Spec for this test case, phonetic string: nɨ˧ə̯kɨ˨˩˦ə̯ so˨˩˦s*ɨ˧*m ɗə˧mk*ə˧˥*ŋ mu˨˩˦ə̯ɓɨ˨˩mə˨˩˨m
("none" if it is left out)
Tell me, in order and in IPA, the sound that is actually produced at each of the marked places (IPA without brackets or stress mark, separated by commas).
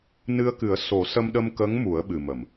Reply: ə˧, ə˧˥